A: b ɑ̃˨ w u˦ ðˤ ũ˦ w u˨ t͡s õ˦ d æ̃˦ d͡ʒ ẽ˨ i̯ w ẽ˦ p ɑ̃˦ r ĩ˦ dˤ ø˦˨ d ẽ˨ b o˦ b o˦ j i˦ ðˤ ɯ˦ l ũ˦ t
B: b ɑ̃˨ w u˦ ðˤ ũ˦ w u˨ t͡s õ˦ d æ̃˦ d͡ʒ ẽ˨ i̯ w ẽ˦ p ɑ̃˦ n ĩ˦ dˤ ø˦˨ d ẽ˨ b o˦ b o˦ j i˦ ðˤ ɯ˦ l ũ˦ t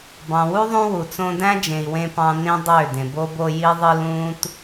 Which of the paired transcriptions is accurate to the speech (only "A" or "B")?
B